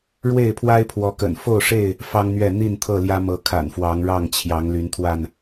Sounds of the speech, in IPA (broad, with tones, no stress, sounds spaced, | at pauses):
ɻ w e˥˨ ɪ̯ pʰ w a˦ ɪ̯ pʰ w ɔ˨˦ k ə̰˨˩ n f o˥˨ ʊ̯ ʂ e˥˨ ɪ̯ | f ɑ˦ ŋ n̪ ɥ ɛ˥˨ n̪ i˥˨ n t̪ʰ ɤ˥˨ l j ä˦ m ɤ˨˦ kʰ a̰˨˩ n f w ɑ˨˦ ŋ ɻ ɑ˥˨ ŋ t͡ɕʰ j ɑ˨˦ ŋ l y˨˦ n t̪ʰ w a˥˨ n